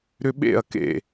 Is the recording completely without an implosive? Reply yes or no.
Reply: no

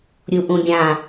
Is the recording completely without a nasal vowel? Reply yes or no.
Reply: no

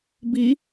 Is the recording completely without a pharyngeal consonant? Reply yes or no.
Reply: yes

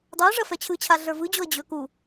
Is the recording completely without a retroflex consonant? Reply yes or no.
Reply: no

